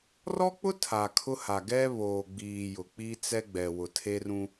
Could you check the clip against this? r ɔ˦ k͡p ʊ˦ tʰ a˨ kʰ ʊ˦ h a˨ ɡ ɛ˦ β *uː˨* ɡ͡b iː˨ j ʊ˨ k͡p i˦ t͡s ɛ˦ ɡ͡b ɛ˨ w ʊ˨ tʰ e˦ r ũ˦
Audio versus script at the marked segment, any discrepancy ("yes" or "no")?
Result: yes